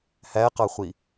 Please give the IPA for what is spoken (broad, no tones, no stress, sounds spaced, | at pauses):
h æ q ɑ χʷ i